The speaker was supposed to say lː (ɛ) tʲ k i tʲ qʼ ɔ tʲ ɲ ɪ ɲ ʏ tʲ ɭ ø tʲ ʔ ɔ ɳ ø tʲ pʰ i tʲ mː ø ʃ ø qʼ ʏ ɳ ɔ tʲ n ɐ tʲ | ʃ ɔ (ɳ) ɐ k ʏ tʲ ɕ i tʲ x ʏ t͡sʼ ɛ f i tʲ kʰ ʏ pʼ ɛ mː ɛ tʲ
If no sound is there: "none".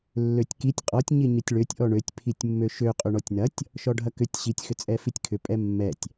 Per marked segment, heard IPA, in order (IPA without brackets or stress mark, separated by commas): ø, ɖʱ